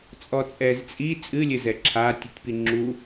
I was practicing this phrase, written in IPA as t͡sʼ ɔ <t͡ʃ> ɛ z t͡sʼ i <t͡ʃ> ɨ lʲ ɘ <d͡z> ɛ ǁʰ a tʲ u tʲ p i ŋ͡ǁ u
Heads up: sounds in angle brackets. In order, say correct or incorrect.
incorrect, incorrect, incorrect

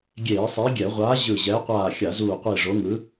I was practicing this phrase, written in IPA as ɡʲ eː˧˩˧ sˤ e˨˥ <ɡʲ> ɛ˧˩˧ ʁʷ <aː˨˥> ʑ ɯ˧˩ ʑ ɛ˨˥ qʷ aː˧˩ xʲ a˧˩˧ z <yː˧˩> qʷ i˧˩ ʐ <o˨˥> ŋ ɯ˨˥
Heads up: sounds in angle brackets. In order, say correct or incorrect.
correct, correct, incorrect, correct

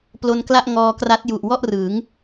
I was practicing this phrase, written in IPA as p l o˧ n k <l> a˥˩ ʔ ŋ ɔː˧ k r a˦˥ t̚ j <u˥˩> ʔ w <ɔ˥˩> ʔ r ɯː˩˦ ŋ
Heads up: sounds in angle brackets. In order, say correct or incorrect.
correct, incorrect, correct

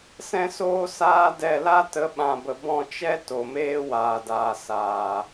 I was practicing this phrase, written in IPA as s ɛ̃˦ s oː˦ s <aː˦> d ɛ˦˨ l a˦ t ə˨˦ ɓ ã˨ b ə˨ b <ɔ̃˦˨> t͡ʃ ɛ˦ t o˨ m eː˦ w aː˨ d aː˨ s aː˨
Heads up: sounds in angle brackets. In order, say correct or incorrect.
correct, correct

